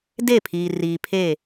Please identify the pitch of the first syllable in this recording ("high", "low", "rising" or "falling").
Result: falling